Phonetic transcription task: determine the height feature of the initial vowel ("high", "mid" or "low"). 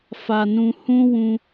low